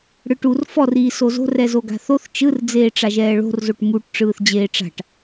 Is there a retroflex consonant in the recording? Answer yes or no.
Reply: yes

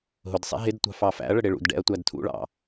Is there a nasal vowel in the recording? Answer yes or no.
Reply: no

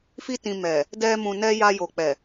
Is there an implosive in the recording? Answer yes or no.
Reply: no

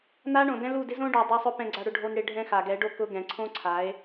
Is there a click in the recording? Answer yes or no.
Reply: yes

